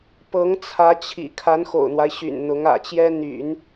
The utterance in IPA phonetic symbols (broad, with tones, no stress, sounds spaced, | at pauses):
p ɤ˧˥ ŋ t͡sʰ ä˧˥ t͡ɕʰ ḭ˨˩ kʰ a˧˥ n x o̰˨˩ ʊ̯ n̪ w a˦ ɪ̯ ɕ y̰˨˩ n n̪ ʊ˧˥ ŋ ä̰˨˩ t͡ɕ j ɛ˥ n̪ y̰˨˩˦ n